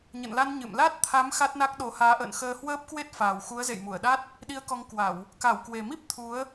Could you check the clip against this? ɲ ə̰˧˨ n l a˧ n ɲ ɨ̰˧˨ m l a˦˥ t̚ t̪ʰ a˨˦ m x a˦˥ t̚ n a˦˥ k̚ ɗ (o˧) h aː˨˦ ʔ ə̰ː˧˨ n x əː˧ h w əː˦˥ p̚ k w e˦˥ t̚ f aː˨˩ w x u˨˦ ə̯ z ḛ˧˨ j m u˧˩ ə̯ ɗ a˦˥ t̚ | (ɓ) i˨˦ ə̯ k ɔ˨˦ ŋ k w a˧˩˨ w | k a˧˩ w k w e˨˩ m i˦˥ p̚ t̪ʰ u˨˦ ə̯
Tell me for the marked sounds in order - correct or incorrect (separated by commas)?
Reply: incorrect, incorrect